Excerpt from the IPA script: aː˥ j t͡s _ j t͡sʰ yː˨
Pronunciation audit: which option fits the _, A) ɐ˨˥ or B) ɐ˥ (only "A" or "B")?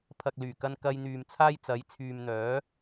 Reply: A